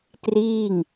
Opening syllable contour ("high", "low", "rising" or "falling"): falling